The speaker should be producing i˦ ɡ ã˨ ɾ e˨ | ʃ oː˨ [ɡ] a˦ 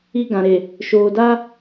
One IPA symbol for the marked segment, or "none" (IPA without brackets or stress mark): d